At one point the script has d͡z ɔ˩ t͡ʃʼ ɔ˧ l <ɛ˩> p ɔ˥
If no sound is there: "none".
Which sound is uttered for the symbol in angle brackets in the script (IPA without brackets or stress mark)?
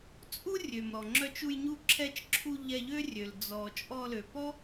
ø˩